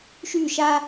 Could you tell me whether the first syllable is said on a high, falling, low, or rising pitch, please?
falling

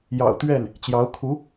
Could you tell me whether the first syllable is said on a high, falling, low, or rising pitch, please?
low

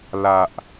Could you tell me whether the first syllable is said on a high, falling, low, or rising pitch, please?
low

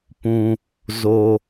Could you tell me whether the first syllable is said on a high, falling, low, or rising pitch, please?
low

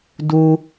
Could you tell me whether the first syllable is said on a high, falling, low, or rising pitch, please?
high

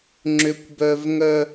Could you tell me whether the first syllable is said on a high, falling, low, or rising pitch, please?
high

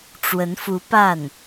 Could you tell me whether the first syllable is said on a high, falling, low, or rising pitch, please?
rising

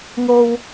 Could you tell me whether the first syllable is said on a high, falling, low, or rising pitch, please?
low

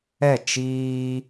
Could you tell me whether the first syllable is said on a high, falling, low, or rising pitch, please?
falling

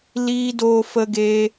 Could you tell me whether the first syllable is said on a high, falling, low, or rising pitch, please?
high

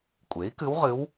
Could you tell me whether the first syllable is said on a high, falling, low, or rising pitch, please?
rising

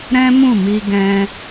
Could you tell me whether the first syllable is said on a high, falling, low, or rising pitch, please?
high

